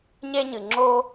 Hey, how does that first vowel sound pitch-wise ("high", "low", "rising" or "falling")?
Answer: high